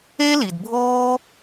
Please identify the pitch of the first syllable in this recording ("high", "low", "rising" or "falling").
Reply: high